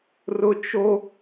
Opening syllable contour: high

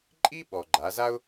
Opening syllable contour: high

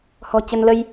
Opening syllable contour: low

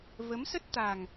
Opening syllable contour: rising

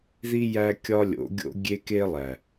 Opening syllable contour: high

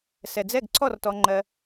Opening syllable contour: low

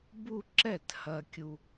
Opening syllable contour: falling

